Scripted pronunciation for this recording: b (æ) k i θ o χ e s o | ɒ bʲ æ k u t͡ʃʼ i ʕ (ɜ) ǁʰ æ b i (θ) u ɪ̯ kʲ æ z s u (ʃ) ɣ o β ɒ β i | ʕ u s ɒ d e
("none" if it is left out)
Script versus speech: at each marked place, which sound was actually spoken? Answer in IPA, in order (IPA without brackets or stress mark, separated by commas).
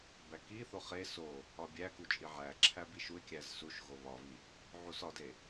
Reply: æ, æ, ʃ, ʃ